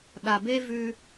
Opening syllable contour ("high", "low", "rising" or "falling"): low